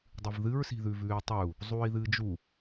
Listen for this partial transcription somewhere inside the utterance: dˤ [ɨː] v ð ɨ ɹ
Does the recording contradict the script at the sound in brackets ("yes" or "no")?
yes